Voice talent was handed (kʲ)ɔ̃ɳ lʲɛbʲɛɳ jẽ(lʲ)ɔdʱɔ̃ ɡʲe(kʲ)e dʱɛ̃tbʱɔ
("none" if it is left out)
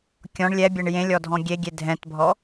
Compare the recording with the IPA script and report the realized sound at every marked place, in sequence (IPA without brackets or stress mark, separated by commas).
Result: kʲ, lʲ, ɡʲ